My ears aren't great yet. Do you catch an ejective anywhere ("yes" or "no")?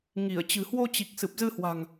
no